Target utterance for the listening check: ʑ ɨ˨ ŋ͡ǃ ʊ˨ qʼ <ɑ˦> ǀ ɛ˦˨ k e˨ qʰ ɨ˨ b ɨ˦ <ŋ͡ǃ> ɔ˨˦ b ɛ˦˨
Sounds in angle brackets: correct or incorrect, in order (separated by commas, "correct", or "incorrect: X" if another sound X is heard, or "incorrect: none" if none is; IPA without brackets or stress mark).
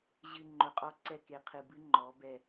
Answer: incorrect: ɔ˦, correct